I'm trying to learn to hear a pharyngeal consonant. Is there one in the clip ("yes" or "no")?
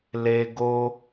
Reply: no